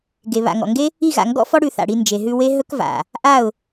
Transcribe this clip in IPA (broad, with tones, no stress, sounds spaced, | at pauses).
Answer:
ɡ e˨ β a̰˨ ŋ ɔ̰˨ ŋ ɡ e˦ | i˦˨ ɣ a̰˨ ŋ ɡ ɔ̰˦ f ɔ˦ ɽ ʉ˧ θ a̰˨ ɽ i˧ n d͡ʒ e˨ ɦ ʉ˧ w e˦ ɦ ɵ˦ k v a̰˨ | ʔ a˦˨ ʊ̯